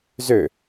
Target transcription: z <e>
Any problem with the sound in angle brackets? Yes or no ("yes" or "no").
yes